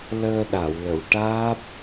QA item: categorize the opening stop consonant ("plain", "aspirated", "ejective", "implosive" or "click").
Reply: implosive